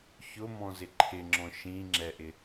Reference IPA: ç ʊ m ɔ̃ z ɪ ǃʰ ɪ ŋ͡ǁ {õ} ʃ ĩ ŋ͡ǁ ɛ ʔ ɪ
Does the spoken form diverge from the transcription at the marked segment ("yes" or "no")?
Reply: yes